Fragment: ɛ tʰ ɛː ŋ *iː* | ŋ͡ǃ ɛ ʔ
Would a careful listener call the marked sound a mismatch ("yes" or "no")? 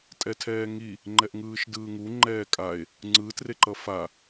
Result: yes